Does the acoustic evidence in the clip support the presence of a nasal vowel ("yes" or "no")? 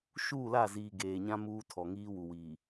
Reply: yes